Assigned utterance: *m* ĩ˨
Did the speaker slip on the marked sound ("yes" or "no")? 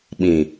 yes